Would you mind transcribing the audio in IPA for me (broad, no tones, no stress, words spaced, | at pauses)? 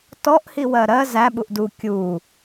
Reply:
tɔʔ hiwɜɾɜ zæ ɓuʔdu kʲu